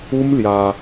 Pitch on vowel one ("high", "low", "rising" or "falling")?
high